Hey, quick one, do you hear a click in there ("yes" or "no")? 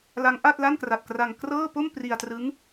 no